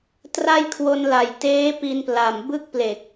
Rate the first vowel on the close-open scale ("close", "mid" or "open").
open